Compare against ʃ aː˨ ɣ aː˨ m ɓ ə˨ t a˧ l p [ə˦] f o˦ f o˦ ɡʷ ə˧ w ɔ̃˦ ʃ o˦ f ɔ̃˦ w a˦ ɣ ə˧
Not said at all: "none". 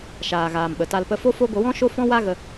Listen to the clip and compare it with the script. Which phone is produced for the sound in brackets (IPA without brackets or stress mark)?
ə˧